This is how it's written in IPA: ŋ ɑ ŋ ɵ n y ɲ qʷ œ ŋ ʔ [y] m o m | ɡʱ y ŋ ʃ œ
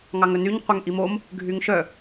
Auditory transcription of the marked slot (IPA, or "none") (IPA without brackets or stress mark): i